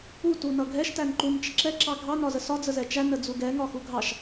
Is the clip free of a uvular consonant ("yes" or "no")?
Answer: yes